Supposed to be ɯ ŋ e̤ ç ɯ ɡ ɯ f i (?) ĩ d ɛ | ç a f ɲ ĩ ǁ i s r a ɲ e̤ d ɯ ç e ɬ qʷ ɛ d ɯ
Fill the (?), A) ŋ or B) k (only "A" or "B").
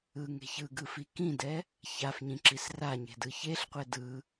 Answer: B